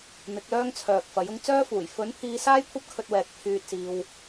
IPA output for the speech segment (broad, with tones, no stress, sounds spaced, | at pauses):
n̪ ɪ˨˥ k̚ l œː˥ ŋ t͡sʰ œː˨ k̚ f ɐ˨˥ j ʊ˧ ŋ t͡s œː˥ f uː˨˩ j f ɵ˨˥ n pʰ iː˧ s aː˥ j kʷʰ ɐ˥ p̚ kʰ ɵ˧ t̚ w ɛː˨ k̚ pʰ yː˧ t̚ s iː˧ w